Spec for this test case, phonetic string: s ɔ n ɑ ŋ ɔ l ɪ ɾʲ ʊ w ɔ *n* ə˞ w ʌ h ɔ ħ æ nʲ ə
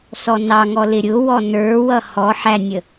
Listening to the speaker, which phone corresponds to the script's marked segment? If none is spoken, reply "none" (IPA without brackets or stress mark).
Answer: n